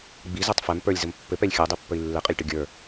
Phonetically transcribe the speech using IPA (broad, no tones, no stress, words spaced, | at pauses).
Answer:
ɡ͡bizɛtˤ fɛm pə˞lʲzəm pːɘpɛlʲ xʲəu̯dˤipːəi̯ lːɘqʼɘlʲʈə ɡʲə˞